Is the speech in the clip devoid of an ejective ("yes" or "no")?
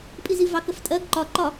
no